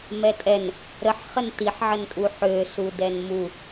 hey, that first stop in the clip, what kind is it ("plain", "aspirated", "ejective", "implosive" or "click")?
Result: ejective